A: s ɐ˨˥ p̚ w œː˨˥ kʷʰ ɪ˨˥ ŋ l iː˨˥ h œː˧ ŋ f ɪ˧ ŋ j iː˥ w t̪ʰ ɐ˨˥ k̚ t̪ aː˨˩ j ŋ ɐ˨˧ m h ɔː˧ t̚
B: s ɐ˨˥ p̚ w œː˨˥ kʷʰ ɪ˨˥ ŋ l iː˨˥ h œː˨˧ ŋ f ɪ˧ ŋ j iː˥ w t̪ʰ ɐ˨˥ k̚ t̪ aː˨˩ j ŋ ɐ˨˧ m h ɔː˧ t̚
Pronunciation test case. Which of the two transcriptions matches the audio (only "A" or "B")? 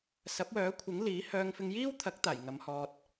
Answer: A